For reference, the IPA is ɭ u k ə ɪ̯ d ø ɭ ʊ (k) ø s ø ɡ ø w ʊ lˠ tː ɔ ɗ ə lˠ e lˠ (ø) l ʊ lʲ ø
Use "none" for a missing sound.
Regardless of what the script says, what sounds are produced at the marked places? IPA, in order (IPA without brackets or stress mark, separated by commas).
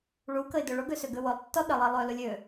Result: ɡ, ø